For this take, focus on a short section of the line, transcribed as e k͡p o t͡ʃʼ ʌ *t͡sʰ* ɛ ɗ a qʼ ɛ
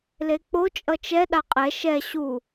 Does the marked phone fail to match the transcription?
yes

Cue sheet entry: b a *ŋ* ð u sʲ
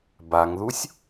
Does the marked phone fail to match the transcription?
no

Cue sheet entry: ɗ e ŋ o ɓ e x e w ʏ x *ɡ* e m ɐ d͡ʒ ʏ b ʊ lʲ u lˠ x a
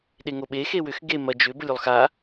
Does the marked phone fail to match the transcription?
no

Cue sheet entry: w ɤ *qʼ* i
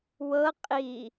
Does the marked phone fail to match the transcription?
no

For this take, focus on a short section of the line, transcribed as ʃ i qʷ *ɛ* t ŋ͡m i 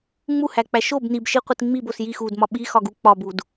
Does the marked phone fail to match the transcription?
yes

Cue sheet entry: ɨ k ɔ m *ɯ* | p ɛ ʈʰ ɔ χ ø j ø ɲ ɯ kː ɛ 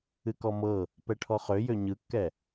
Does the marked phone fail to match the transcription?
yes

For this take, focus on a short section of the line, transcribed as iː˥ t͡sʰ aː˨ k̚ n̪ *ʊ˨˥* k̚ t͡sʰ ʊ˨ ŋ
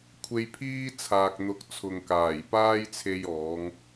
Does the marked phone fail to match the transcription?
no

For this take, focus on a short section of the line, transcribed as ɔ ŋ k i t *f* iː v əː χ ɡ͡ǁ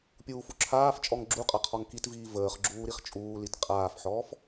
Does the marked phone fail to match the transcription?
yes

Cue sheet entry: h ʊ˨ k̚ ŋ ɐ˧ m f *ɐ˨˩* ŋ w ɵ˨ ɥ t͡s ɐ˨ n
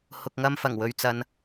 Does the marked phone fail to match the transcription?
no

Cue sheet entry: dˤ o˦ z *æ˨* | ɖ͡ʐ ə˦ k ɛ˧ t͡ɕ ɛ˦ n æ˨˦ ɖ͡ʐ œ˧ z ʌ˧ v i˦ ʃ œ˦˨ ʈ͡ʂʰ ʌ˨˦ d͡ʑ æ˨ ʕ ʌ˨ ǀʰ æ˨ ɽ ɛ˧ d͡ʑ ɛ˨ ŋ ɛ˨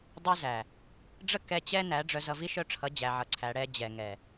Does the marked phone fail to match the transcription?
no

